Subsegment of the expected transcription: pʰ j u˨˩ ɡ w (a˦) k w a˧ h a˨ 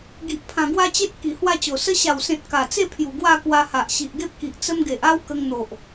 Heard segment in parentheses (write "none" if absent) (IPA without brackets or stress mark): a˥˧